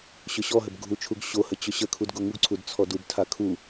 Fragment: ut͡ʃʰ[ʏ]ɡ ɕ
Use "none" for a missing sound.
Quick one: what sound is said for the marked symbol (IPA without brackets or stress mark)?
u